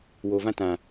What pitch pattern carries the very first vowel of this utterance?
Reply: low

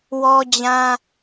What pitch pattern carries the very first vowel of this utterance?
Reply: high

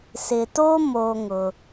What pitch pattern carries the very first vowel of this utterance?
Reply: low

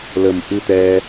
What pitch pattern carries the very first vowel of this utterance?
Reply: low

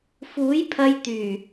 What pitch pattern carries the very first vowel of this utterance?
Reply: rising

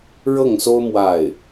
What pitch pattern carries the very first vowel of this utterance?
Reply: falling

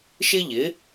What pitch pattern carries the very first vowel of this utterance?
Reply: high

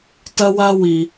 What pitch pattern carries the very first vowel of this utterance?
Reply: high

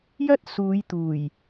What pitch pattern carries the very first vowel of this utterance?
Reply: high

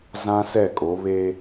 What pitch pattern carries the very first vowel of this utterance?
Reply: high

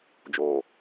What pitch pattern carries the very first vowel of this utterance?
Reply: low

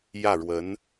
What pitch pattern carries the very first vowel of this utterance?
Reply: falling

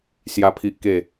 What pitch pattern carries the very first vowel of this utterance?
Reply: high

